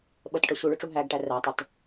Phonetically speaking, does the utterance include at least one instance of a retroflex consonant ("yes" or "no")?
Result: yes